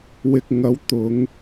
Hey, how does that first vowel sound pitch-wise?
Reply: low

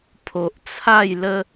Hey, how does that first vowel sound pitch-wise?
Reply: low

